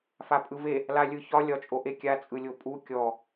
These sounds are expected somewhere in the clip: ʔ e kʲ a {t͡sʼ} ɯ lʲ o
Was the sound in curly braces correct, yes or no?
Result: yes